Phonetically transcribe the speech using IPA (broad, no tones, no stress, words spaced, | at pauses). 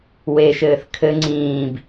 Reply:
weʃɘːθ kʰɘ ŋ͡ǀĩːb